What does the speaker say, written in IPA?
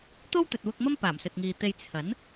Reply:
t̪ o˥ w t̪ ɵ˨ t̚ w ʊ˧ k̚ m ɐ˥ m p aː˨˩ m s ɵ˨ t̚ ŋ iː˨ t̪ e˧ j t͡sʰ ɐ˨˥ n

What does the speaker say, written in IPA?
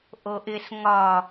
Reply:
ʔ o ʔ ɪ s ŋ ɒ

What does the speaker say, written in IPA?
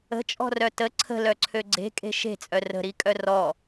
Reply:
ə̤ t͡ʃʼ ɔ̤ r œ t ə ǀʰ ə̤ l œ ǀʰ ø ɡ͡ǀ e̤ kʼ e̤ ʃ e̤ t͡sʼ œ r ə̤ ɾ i kʼ œ r ɔ

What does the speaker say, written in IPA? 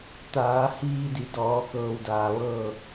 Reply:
t̪ aː˩˧ h iː˧ d i˩˧ d ɔː˩˧ k ɤː˧ w d aː˩ ʋ ɤː˥˨

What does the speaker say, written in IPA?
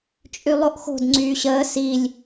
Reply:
t͡ʃʼ y lˠ o ʔ x o̤ d ŋ͡ǀ yː ɕ əː s i lʲ

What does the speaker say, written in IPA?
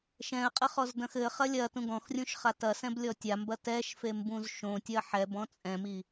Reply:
ʃ ɛ̃ ə̯ qʼ ɘ χ ɔ z d ɐ̃ x ɘ χ ɐ lʲ ɐ t ũ ɡ ɔ̃ x rʲ ũ ʃ χ a t ɐ s ɛ̃ b lʲ ɔ tʲ a m b ɐ t ɛ ʃ f e m b ũ z ʃ õ tʲ ɐ ħ ɛ b ɔ̃ t͡sʼ ɛ̃ m i

